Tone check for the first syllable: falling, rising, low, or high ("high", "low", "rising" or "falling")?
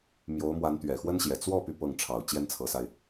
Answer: rising